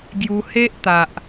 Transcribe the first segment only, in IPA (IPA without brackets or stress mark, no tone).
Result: ɡ